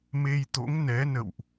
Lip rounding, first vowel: unrounded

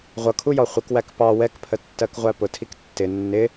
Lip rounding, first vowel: unrounded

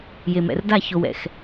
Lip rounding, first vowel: unrounded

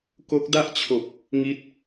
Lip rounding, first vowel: rounded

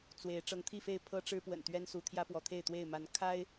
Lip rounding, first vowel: unrounded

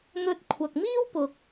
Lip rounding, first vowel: rounded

